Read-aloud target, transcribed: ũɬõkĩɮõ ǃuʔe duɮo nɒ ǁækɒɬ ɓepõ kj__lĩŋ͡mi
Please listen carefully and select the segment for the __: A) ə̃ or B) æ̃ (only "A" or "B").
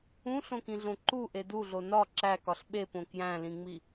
B